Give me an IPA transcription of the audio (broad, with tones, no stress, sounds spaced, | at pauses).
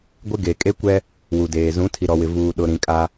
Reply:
ɡʷ ɪ˦ ɡ e˨ kʼ e˦ kʷ ɛ˦ | w u˨ d eː˨ z ũ˨˦ tʰ i˨ ɾ ɔ˨ w ɪ˨ v uː˨ ɗ ʊ˨ ɾ ĩ˨ kʼ a˦